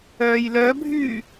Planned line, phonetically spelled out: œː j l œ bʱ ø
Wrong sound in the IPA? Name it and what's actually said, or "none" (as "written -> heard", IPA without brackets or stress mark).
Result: ø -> y